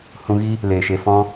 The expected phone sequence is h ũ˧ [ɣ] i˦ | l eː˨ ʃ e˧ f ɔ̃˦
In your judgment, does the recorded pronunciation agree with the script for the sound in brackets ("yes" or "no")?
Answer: yes